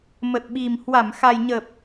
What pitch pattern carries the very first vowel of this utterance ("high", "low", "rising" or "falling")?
low